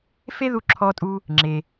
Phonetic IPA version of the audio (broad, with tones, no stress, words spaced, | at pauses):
fe˥ðu˧ǁʰɔ˧tʼu˧ | ŋ͡ǁe˩